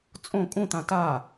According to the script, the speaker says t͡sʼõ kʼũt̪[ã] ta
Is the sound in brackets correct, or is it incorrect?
correct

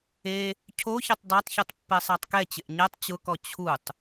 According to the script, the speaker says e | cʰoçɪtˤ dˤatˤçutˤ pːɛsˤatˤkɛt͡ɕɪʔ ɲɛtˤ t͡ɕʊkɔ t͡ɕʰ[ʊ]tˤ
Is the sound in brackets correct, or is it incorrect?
incorrect: u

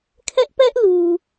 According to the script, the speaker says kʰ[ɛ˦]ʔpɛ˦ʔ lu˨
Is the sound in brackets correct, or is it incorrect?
correct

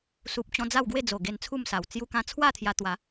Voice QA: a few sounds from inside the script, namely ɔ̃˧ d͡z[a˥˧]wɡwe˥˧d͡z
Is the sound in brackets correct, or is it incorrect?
correct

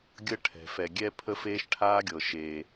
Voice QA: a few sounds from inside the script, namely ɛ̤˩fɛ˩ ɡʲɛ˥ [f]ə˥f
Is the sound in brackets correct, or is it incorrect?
incorrect: pʰ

